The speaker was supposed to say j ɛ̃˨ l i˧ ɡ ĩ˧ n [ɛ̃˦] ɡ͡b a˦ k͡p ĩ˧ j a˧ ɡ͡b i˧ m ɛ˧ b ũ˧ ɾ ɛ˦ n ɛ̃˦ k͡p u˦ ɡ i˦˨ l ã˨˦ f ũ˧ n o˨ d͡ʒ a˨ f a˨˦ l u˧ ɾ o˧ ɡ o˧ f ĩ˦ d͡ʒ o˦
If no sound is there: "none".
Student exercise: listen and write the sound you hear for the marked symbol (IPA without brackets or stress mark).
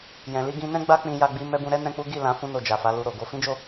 ɛ̃˦